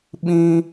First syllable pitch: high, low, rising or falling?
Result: high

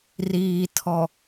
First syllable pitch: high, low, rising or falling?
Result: low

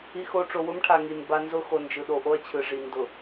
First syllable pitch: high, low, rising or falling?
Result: low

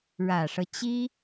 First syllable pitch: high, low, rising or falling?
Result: low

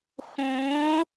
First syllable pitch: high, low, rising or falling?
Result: rising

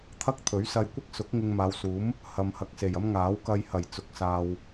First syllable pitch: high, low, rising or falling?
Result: high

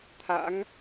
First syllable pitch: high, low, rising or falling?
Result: rising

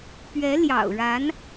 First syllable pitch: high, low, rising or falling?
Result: rising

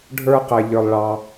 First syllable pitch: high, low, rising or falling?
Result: high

